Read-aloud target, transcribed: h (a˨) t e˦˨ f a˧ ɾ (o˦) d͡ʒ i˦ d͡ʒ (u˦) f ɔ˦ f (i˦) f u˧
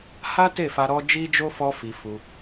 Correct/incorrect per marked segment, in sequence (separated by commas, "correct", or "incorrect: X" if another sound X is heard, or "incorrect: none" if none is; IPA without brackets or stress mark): incorrect: a˦, incorrect: ɔ˦, incorrect: o˦, incorrect: i˧